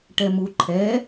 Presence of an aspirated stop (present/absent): present